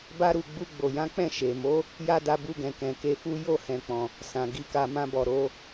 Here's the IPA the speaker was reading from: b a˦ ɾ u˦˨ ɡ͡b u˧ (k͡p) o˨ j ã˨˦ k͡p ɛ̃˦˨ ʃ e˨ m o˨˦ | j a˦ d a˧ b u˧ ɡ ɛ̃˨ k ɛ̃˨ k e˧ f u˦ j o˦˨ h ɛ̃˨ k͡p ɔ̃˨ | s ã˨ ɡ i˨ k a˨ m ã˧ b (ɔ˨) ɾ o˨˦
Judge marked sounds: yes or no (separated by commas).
no, yes